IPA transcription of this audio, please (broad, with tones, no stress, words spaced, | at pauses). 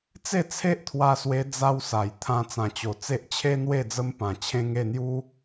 t͡se˥˧t͡sʰe˦ʔt̪ʰwa˧swe˧ d͡za˧wsa˨˩j t̪ʰã˧ t͡sã˨˩t͡ɕo˨˩ t͡se˦ʔt͡ɕʰe˦n̪we˥˧ d͡zə˧mpã˨˩t͡ɕʰẽ˧ŋ e˥˧n̪ju˦